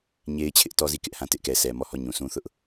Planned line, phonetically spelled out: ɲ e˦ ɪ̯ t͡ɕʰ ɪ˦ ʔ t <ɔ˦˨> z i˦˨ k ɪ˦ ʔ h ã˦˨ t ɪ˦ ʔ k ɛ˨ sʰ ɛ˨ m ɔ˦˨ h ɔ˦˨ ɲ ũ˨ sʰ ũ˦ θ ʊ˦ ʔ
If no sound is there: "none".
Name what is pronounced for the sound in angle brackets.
ɔ˦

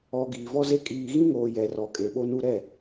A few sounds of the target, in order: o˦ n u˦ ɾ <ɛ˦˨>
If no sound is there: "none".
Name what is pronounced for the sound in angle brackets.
ɛ˦˨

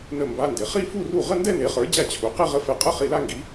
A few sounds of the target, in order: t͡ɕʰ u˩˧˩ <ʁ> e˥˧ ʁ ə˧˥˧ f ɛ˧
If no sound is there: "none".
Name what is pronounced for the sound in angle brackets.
q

